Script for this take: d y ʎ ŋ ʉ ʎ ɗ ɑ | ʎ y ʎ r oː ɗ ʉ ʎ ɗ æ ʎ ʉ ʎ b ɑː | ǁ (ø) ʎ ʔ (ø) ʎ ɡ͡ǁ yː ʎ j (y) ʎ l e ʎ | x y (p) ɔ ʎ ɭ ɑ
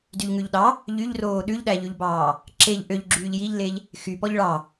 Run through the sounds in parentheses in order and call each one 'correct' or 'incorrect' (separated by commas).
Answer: incorrect, correct, incorrect, correct